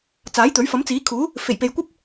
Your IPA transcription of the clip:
t͡s aː˨˥ j t̪ ɵ˨˥ ɥ f ɐ˨˥ m t͡s iː˨˥ kʰ uː˨˥ | f e˨˩ j p e˨ j kʷ ɐ˥ p̚

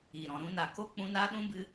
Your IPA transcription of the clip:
i˨ ɾ ɔ̃˨ ɾ ũ˧ n a˨ k o˦ k͡p ũ˧ n a˦ ɗ ũ˦ b ɨ˧

